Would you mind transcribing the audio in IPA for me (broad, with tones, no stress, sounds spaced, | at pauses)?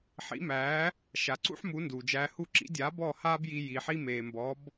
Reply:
ħ ḭ˩˥ m æː˩˥ | ʃ a˩ ǀ ṵ˥ ħ m u˩˥ n d uː˩ d͡ʒ æː˧ h u˥˩ ǁ ḭ˩˥ dʲ aː˩˥ b ɔː˥˩ h aː˥ b j i˧ j iː˩ ħ i˥ m eː˩ m b ɔ˩˥ b